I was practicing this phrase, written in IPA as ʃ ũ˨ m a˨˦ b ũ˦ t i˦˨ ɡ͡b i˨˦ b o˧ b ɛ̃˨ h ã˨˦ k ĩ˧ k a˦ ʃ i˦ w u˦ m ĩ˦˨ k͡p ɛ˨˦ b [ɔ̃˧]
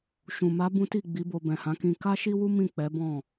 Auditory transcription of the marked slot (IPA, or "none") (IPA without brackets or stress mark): ɔ̃˦˨